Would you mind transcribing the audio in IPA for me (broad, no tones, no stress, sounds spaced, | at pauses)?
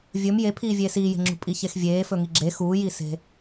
vʲ ɵ m j e pʰ iː vʲ eː s iː j e̤ ŋ͡ǁ ṳ pʼ i ç e x vʲ eː f ɵ ŋ i ɡ͡ǁ e x uː j i s e̤